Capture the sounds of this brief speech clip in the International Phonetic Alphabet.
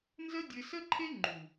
nzə˦dʲɘ˧sə˦ǃʰe˦ ŋ͡ǃu˨

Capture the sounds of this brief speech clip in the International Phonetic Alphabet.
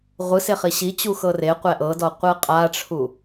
ʁʷɯse χiɕit͡ɕu xɤreqʷɛ ʔɤdɔ qʷɯqʼaʈ͡ʂʰu

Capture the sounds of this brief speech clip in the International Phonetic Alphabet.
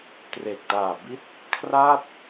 tre˨˩k̚taː˨˩bi˦˥t̚ | kʰra˥˩t̚

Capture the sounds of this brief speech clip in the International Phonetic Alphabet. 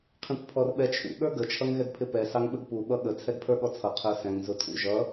qʰĩkʷpʰɔrɓɛt͡ʃʰṵ ɠə˞ɡə t͡ʃʰʌŋɣɛɡpʰɪpɛ sɑŋɓəɡpu ɓʌɠə t͡sʰɛɡpʰə˞ɠɔt͡sʰʌ qʰə˞sɛ̃ŋ zʊtʰṵʒʌ

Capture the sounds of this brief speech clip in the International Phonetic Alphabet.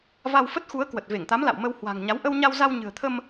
va˧wfə˦˥t̚xu˨˦ə̯ kwə˨˩t̚ve˧˩ŋt̪a˨˦mla̰˧˨w mə˧whwa̤˨˩ŋɲa˨˦w ʔə˧wɲa˧wza˧w ɲɨ̤˨˩ə̯t̪ʰə˧m

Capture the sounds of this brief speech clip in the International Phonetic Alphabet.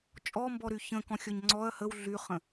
t͡ʃʼɔmbɔɾy çə̃kɔ̃xʲɔɲ ŋ͡ǀɔɐ̯ həw ɮyχə̃

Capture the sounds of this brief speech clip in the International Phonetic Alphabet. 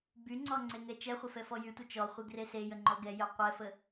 byŋ͡ǀɔŋ͡ǀeŋɛ t͡ʃɛχʷəfɛfɔ jytʷə t͡ʃɔχʷeɡre sejəŋ͡ǃɔ ɡɛjœ qʷɛfə

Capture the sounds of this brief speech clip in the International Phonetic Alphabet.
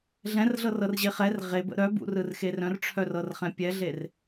ɮɛ̃rɮɤrɤrʑe χɛr ʁebə̰ ɾœbṵrɯrxe rœ̃rʈ͡ʂʰœrɤrχɛ̃ pʲɛɮer

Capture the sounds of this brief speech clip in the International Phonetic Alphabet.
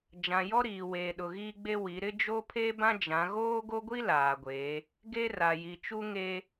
d͡ʒã˨jɔ˦ɾiː˨weː˨ ɗʊ˨ɣiː˦ɡ͡be˦ wi˨˦ ɾɪ˦d͡ʒo˦pʰe˦bã˦ d͡ʒã˨˦ ɣoː˦ɡo˦ɡʷi˦ laː˨ɡʷeː˨˦ | ɡe˦ ra˨ji˨ t͡ʃu˦ŋeː˦

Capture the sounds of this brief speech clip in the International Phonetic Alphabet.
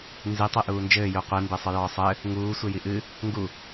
nzi tˤeʔuːnd͡ʒɘː juqʷi mbesˤɨjɔːsˤɘ | ŋuː sʷejiʔɨ | ŋɡu

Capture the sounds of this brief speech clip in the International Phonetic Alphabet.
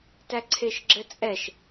tæǀʰeʃɡ͡ǁɘt͡sʼɛʃ

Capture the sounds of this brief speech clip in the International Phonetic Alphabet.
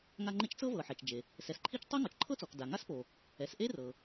ŋa˥ŋ͡ǃe˥t͡ʃ t͡sɤ˥vɤ˩ ħɛ˩t͡ʃd͡ʒe˩ | sɛ˩sǃʰi˥t͡ʃ tˤe˥ŋɔ˩t͡ʃǃʰɤ˥t͡sɔ˩k da˩ŋa˥spo˩ | ɛ˩sʔe˥rɤ˩

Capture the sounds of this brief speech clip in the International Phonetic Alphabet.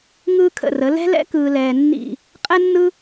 ŋɯː˧kʰə̰˧˩rə˩˧ lɛ̤˥lɛ̰˥kɯː˧ lɛː˧nːḭ˥˧ | qʼɛ˥nːɯ˥

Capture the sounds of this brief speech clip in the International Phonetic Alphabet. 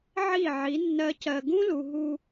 ʕi˦˨ʕi˨˦ nːɜ˦cɜ˧ ɡũ˦lu˨ ɦu˧

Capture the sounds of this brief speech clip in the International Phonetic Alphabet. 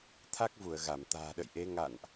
t̪ʰa˦˥k̚vu˧˩ə̯ɣa˧˩m t̪a̤ː˨˩ɗə̰˧˨jʔe˨˦ ŋa̰˧˨nʔ

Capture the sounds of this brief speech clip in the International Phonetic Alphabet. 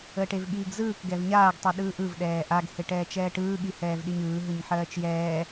əːʈevɠiːɡzɯːk ɡɛvɲaːɡ tˤiɗɯːʔɯv ɗɛːʔaɡ heʈɛːt͡ʃɛːʈɯː ɠihɛːvɗiɲɯː ɦɯɲħɜːt͡ʃjɛː

